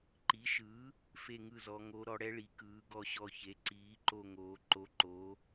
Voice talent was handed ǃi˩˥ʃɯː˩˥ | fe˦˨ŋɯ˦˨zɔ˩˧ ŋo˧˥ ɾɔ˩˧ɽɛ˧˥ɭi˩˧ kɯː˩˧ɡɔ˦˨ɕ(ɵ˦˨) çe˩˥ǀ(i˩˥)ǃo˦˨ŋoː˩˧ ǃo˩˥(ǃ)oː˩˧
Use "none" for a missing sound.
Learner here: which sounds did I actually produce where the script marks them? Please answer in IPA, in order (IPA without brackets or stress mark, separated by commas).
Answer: ɔ˦˨, iː˩˥, ǃ